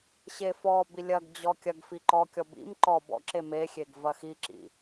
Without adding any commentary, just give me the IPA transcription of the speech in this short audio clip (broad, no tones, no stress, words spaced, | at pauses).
ɕefɔbi lʲɐɡd͡ʑɔ kʲɐɡfi ǃɔkʲɔ bḭm ǃɔ bɔ̰ǁe mexʲeɡ vɐxiǁḭ